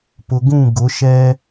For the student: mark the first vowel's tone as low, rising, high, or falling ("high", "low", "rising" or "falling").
low